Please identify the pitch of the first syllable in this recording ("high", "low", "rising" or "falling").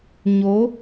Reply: rising